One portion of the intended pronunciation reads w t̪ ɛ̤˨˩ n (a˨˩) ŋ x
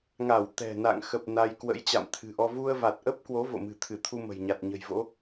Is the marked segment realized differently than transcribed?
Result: yes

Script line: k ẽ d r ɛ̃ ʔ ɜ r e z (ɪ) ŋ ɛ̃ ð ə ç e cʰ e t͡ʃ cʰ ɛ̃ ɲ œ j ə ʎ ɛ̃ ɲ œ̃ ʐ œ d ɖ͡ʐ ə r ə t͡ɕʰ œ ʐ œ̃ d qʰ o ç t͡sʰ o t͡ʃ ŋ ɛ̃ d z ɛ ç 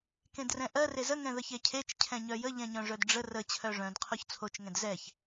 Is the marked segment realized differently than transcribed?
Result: yes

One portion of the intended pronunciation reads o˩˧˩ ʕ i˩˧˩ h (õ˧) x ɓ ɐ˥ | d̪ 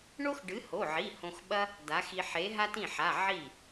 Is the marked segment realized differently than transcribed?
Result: no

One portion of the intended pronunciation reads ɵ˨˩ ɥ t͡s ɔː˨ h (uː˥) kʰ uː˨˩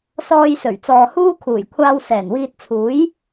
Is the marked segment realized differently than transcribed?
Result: no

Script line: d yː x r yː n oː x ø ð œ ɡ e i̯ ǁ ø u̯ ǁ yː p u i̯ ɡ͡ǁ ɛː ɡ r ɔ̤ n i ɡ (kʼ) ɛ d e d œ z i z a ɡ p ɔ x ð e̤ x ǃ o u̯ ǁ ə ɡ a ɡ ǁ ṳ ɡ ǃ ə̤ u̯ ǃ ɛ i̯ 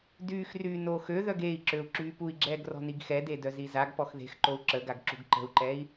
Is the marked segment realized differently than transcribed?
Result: yes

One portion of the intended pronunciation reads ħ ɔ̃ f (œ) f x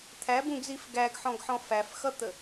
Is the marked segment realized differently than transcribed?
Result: yes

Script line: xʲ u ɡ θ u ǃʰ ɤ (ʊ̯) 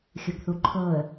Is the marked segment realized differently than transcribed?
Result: yes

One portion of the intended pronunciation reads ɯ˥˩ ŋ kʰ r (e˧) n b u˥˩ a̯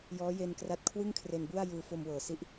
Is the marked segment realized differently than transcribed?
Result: no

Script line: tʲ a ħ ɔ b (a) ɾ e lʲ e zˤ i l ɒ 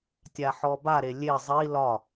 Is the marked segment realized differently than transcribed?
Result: no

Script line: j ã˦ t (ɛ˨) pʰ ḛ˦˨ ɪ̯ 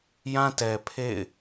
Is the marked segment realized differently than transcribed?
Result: no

